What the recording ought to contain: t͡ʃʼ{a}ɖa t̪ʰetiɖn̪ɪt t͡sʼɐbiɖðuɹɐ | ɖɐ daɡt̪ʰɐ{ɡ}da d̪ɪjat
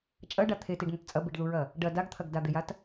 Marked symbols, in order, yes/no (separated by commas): no, yes